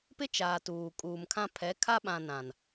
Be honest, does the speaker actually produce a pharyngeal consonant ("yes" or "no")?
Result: no